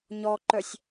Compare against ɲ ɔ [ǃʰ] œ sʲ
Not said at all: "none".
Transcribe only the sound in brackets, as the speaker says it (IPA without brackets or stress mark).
ǃ